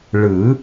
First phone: ɭ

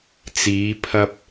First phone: t͡s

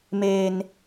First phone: m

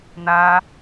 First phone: n̪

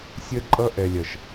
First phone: sʲ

